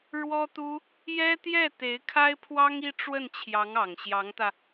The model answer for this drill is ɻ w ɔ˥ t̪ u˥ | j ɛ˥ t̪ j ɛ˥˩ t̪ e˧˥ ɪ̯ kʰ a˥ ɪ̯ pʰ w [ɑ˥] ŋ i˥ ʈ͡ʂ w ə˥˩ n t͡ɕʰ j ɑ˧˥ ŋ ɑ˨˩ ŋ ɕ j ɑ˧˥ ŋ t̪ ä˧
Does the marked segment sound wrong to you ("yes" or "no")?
no